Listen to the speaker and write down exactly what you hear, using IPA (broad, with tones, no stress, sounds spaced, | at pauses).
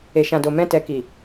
e˨ ʃ ã˨ d o˨ m ɛ̃˧ t ɛ˨ k i˨